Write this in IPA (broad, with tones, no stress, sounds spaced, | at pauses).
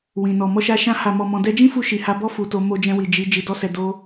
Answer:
w ĩ˨ n ɔ˨ m ɔ˧ ʃ a˧ ʃ ã˧ h a˨ m ɔ˨ m ɔ̃˨ d ɛ˧ d͡ʒ ĩ˦ f u˧ ʃ i˨ h a˧ b ɔ˦ f u˧ t o˧ m o˧ d͡ʒ ɛ̃˧ w i˨ d͡ʒ i˨˦ d͡ʒ i˧ d ɔ˦ s ɛ˧ d o˧